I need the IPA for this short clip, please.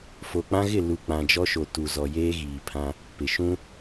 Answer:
fo˨k͡pã˦ɣɪ˦˨lu˨ k͡pã˨d͡ʒɔ˦ʃo˨ tu˨zɔ˨ jeː˦ ɣiː˨pʰã˦ | pɪ˨ ʃũ˦

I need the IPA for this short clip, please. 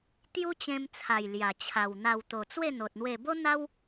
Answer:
t̪ju˦t͡ɕẽ˧mt͡sʰa˨˩j lja˨˩t͡ɕʰa˨˩wn̪a˧w t̪o˨˩t͡swe˥˧n̪o˨t̚n̪we˧ bo˦n̪a˦w

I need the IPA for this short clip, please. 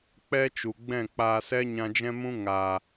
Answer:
k͡pɛ˦t͡ʃu˨ ɡ͡bɛ̃˦˨k͡paː˧sɛ˦ ɲã˧d͡ʒɛ̃˦mũ˦ ŋaː˨

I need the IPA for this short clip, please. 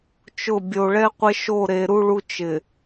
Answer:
t͡ʃʊ˦˨ bʲo˨ɭɛ˦ qʷɪ˦ʃo˦˨ɾe˨ ɾu˦ɭu˦ t͡ʃɪ˨

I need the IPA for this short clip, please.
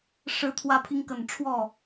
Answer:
ʂɻ̩˧˥t̪ʰwä˧˥pʰi˧˥ŋkə˨˩n ʈ͡ʂʰwɔ˥˩

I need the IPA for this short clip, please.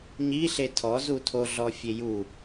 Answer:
ɲiɬe tʰɔ zutʰo ɮɔfʲeju

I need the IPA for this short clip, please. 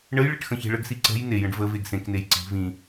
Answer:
ɳəjɭeʈ xə̃çe̤ɭəɡsi ǀə̤j nejə̃ɖ və veɡsẽknej ǀi̤ vĩ

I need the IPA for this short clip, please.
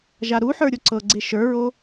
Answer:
ʒaɾuħə˞ ɾʲoǀɤɡ͡ǀe ʃə˞ɹo

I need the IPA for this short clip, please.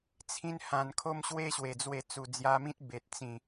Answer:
t͡sʰĩ˦nhã˧n kʰo˦mɕwe˦ɕwe˨˩d͡zwe˧ t͡su˨˩d͡zja˧mĩ˦t̚ be˨t̚t͡sĩ˨˩

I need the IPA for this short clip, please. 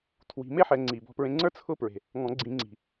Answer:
tʰwi̤˨˩˦me˥ħɛ˨˩˦ ŋ͡ǀi˩ bɔ̤˧pɹẽ˧ŋ͡ǀə˞˥ t͡sʰʊ˥pɹe̤˩ | ŋɔ̃˨˩˦ɡ͡ǀĩ˨˩˦ŋ͡ǀi̤˩

